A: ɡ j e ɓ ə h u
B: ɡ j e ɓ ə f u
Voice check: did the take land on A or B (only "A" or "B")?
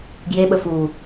B